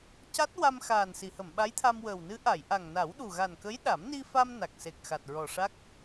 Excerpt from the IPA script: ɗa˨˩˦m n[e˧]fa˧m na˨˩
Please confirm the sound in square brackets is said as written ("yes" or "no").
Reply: no